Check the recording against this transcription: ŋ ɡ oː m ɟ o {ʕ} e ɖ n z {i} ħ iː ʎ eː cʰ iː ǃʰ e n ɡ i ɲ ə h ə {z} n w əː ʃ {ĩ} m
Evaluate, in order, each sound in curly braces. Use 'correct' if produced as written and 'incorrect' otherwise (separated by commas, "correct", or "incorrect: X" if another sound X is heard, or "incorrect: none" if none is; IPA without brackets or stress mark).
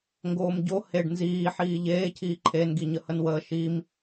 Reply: incorrect: h, incorrect: iː, incorrect: none, incorrect: i